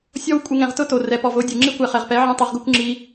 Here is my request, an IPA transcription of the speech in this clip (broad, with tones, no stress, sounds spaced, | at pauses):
sʲ ɔ˧ w kʷʼ ɪ˧ ŋ ɛ̃˨ ʁ t ʊ˦ t o˨ r ɛ˨ p ɔ˨ v o˨˦ dʲ u˨ ŋ͡ǁ i˦˨ kʷ ɛ˨ χ ɛ˨ ʁ p ɛ˨˦ ʕ ɛ̃˦ tˤ o˧ ʁ ɡ u˦ kʷ ŋ͡ǁ i˧